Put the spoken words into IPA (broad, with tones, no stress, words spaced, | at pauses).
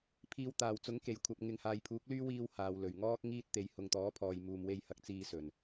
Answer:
pʰiː˨wt̪aː˨˩wt͡sʊ˨˥ŋke˨˩j kʷʰɐ˨p̚ŋɪ˨ŋ haː˨jpʰuː˨˥k̚lyː˥wiː˧w haː˨wlɵ˨˩ɥ ŋɔː˥k̚ŋiː˥t̚ t̪e˨˧jhʊ˨ŋt̪ɔː˨˥pʰɔː˨j muː˨mwe˧jhɐ˨˥k̚ t͡siː˧sɵ˨˩n